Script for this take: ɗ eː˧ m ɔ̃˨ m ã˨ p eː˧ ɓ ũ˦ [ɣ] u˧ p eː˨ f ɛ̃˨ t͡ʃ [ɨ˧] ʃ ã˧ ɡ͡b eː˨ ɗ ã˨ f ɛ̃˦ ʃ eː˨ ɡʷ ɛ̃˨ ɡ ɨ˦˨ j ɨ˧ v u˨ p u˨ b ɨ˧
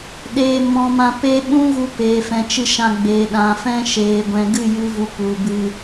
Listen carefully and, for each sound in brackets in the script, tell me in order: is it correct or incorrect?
correct, correct

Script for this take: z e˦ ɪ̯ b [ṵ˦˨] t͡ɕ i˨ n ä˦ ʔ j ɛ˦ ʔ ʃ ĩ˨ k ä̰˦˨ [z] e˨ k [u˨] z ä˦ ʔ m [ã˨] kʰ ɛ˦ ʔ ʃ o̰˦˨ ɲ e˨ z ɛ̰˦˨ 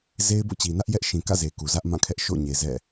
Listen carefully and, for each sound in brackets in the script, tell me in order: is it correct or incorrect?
incorrect: o̰˦˨, correct, correct, incorrect: ã˦˨

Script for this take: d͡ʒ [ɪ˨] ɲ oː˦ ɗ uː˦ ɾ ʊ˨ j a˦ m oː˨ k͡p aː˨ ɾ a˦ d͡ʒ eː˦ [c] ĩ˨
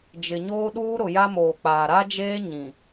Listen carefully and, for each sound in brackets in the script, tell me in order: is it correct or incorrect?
correct, incorrect: ɲ

